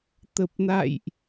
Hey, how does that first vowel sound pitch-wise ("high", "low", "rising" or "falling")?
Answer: low